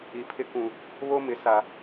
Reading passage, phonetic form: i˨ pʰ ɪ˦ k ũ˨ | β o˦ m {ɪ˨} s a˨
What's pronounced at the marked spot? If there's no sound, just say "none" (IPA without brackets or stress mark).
ɪ˨